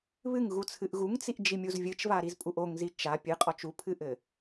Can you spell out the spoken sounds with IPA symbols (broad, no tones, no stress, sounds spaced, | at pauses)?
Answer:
β ɨ ŋ ɣ u t͡sʰ ɨ ʔ ɣ u ŋ t͡s i ʔ d͡ʒ i mʲ u z vʲ ɨ t͡ʃ v a ɾ i z pʼ u ʔ o ŋ z i t͡ʃ a pʲ ɨ qʼ ɔ t͡ʃ u pʰ ɨ ʔ ɘ